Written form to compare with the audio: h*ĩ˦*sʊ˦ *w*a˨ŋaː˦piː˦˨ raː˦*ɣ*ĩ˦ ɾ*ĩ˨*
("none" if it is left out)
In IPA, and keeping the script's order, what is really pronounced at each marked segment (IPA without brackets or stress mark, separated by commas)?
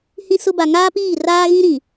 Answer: ĩ˦, b, ɣ, ĩ˨